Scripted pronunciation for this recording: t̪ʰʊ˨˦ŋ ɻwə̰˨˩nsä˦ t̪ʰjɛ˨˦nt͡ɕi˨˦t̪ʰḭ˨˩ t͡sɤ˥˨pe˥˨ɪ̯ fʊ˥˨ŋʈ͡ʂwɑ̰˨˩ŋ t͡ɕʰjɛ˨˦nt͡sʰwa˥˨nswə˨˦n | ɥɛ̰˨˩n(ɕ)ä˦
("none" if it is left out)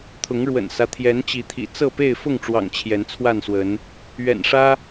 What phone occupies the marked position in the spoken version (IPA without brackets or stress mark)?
ʂ